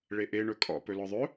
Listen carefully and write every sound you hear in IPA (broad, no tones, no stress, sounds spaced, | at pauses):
ɭ e ʔ e ɳ ɵ kʼ ɔ̰ p ɵ l ɔ ðˤ ɵ